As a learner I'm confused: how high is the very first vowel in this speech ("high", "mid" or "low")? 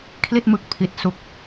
high